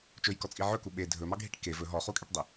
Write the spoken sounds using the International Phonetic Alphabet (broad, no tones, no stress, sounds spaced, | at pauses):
t͡ʃ ɵ j k ɔ t͡sʼ i ʕ ɵ k u ɓ e dʱ ɵ m ɑ ɡʱ i ʈ k e v ɵ ɦ ɔ χ u kʼ e ʈ dˤ e